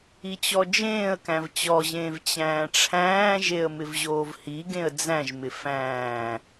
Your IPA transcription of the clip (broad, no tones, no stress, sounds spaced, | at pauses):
i t͡ɕ ɔ d͡ʒ ẽː ə̯ k æ̃ v t͡ɕ ɔ ʑ ẽː v t͡ɕ æ̃ː ʈ͡ʂʰ æ̃ː ʒ e ə̯ m ɪ v ʑ oː v h i ɡ ẽ ə̯ d͡z æ̃ ʒ m ɪ f æ̃ː